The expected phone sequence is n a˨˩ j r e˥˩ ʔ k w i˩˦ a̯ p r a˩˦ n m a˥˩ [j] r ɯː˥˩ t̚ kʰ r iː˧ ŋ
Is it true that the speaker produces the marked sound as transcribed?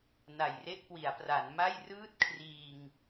yes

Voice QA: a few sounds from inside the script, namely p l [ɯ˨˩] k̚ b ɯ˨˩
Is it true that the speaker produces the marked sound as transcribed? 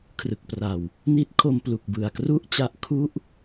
no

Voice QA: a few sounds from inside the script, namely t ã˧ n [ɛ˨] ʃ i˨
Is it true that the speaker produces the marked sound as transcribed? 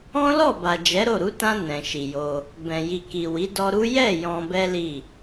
no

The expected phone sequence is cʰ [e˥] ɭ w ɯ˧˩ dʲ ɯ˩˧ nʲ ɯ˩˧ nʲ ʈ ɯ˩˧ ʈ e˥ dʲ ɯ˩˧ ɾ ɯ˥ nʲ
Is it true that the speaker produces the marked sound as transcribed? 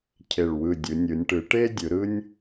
no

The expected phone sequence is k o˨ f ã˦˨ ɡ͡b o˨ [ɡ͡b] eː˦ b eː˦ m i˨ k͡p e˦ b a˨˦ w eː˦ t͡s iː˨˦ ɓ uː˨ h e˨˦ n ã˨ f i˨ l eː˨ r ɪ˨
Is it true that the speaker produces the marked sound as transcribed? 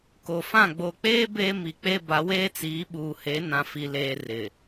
no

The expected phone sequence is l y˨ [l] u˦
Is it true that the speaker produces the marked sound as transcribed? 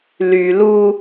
yes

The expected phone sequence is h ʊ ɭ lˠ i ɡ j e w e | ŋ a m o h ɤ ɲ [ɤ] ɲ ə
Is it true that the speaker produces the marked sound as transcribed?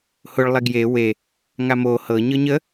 yes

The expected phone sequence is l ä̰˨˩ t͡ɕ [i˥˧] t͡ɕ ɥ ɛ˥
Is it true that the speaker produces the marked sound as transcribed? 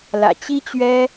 no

